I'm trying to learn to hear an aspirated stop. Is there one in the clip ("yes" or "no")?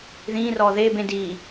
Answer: no